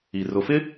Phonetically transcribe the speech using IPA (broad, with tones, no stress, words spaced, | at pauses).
i˨ rʊ˨fɪ˦